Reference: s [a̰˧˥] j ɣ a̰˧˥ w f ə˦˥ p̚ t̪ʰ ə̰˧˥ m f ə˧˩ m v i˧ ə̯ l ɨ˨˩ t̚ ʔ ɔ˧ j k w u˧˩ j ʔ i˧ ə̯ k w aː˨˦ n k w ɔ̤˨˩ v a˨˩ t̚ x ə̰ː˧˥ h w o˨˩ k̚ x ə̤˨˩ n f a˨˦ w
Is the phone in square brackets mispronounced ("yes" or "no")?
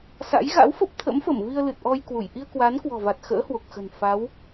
no